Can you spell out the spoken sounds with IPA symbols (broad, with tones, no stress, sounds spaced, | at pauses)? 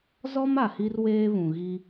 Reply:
z ɔ˦ m a˨ h i˦ r w eː˦ β ũ˨ ɣ i˦